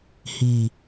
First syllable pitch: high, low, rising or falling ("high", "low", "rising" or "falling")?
low